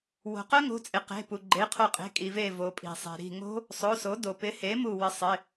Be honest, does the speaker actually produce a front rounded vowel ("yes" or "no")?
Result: yes